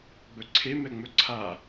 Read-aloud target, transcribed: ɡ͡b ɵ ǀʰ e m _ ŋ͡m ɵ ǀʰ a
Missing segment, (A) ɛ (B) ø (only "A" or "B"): A